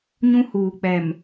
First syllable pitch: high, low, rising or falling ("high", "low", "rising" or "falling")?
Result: high